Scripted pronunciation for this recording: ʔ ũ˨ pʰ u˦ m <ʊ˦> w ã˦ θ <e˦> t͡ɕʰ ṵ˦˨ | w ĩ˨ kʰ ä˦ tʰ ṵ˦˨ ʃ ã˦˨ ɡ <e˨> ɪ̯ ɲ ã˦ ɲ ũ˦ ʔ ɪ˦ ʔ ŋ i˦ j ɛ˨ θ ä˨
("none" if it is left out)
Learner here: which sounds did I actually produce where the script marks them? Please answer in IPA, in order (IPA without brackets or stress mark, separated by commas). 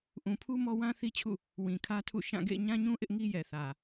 ɔ˦, i˦, ḛ˦˨